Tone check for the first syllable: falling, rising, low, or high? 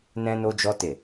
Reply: high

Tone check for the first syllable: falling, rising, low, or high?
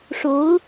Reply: rising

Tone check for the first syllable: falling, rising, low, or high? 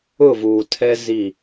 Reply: falling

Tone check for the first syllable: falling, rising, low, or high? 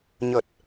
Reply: low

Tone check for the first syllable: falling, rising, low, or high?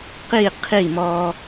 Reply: falling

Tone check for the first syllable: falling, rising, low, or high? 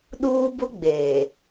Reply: high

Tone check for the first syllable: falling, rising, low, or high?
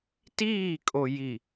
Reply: falling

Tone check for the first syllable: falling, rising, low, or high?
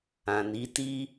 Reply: low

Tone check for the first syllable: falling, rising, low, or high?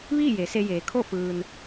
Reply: falling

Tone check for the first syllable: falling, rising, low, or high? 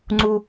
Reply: high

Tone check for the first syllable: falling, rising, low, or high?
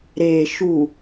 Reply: low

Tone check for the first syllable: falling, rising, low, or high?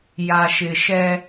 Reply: low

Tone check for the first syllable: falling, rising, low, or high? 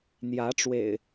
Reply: rising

